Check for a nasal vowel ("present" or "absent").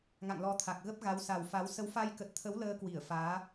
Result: absent